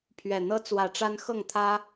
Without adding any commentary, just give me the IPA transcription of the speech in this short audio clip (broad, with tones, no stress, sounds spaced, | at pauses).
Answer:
pʰ ɥ ɛ˨˩ n̪ ɤ˦ t͡s w ä˨˦ ʈ͡ʂ a˦ n x ɤ˥˨ ŋ t̪ʰ ä˦